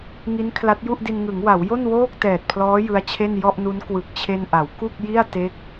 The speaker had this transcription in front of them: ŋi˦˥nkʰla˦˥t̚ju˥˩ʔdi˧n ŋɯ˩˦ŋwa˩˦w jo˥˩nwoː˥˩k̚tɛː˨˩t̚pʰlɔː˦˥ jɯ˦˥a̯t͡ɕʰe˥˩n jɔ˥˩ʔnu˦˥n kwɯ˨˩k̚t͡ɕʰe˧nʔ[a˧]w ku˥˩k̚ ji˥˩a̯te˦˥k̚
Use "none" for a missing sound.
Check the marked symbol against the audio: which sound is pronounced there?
a˩˦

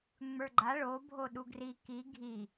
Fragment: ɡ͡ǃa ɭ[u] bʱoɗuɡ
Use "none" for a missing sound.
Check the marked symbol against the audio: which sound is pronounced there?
o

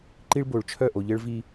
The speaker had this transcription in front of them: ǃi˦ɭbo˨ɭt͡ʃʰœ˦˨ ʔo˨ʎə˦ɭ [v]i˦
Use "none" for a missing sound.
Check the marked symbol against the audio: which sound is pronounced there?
v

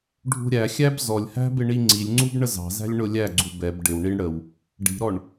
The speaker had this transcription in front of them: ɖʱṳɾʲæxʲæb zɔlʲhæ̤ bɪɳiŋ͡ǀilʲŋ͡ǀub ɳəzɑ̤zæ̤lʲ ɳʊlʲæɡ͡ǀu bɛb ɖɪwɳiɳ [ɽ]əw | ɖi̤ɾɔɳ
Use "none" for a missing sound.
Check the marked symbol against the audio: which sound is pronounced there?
ɽ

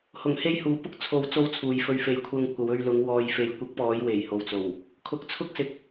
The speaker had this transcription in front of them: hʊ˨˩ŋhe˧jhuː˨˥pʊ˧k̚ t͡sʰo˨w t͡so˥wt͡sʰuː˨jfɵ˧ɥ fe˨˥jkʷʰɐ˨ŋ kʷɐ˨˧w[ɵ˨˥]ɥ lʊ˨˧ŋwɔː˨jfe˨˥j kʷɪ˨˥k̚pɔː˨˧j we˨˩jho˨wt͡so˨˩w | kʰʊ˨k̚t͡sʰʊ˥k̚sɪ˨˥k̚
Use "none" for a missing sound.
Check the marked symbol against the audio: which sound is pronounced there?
ɵ˧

